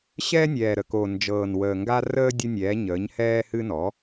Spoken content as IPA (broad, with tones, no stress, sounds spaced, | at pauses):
ɕ ɛː˦ nʲ ɛː˨˩ ɾ ə˨˩ k o˨˩ n d͡ʒ ɤː˨˩ n w əː˨˩ ŋ ɡ a˦ r əː˦ dʲ ə˦ nʲ ɛː˩˥ ɲ əː˩˥ ɲ h ɛː˦ h ɨ˦ n ɔ˩˥